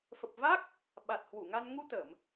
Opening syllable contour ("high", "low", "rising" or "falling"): low